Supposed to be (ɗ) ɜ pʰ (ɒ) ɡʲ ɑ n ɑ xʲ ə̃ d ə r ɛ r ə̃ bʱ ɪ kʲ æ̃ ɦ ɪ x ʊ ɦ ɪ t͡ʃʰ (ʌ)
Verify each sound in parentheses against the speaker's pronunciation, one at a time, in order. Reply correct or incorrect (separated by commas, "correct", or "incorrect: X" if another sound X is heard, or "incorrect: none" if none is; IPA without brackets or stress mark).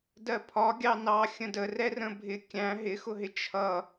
incorrect: d, correct, correct